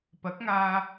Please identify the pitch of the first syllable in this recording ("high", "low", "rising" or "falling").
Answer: rising